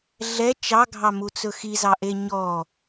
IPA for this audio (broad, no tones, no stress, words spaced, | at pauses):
ɮɛ t͡ʃɑɡʱɑmut͡sɵ xizɑʔe ɲɔ